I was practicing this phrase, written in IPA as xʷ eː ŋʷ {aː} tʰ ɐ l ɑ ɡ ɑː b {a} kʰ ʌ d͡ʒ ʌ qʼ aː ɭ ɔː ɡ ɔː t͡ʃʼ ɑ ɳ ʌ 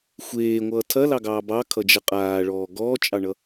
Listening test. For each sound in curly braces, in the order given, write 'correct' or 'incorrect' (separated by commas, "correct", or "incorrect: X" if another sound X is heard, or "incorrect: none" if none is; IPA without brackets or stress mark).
incorrect: ʌː, incorrect: ɑ